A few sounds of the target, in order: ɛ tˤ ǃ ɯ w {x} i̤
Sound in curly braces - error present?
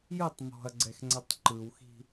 no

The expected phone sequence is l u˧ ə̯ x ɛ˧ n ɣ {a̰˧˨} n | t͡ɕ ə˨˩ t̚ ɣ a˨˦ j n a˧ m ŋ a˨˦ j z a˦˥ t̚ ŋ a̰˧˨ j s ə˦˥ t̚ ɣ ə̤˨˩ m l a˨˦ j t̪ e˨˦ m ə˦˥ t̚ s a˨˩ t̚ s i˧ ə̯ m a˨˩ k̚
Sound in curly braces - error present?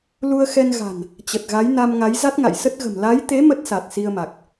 yes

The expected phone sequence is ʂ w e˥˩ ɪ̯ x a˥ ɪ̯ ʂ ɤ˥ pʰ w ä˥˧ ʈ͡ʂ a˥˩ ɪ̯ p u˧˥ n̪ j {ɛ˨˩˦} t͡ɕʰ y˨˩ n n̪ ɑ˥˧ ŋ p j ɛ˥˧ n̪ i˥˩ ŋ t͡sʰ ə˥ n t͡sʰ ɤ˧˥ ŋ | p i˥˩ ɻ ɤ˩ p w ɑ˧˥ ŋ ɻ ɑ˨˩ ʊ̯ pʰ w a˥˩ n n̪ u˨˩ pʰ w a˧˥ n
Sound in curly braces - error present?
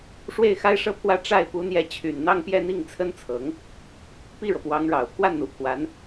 yes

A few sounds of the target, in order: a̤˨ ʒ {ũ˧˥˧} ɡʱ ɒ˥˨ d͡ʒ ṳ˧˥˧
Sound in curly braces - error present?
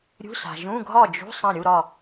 no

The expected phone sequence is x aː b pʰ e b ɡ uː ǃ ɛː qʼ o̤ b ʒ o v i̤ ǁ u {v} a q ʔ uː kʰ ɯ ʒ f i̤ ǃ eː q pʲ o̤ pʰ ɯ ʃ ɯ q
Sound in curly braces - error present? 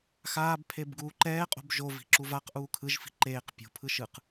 no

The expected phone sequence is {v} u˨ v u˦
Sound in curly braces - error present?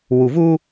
yes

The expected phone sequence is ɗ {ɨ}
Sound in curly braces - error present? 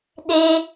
yes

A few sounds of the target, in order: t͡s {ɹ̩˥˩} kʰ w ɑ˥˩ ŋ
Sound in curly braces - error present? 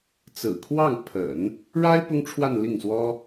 yes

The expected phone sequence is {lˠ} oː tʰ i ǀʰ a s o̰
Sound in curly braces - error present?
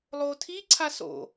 no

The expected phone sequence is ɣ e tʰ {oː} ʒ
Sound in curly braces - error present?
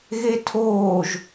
no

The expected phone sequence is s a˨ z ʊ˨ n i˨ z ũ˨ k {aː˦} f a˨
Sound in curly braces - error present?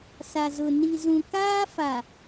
no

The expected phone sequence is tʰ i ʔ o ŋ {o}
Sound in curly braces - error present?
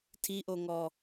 yes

